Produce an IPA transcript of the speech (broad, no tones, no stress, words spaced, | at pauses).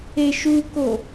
eʃuko